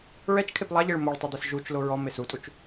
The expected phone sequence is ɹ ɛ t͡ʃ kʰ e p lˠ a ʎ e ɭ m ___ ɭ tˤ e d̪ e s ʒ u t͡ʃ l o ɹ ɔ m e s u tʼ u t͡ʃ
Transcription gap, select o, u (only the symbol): o